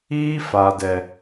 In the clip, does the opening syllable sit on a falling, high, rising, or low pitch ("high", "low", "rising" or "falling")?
high